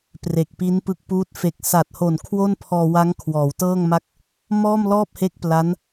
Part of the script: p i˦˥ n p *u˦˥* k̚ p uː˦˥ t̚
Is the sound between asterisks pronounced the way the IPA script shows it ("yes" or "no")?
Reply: no